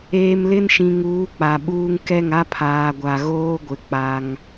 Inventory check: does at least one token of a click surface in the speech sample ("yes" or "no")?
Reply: no